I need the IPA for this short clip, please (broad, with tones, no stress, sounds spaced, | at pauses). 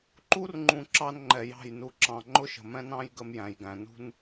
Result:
ǃ u˦ r ŋ͡ǃ ũ˨ ǁ ɑ˦ n ŋ͡ǃ ɛ˨ j ɑ̤˦˨ j n u˨ ǁ ɑ̃˨ ŋ͡ǃ ʊ˦ ʃ ə̤˨ m ɛ̃˦ n ɑ̃˦ j ɡ ə˦ m j æ̃˨ j ɡ æ̃˨ n ṳ˦ n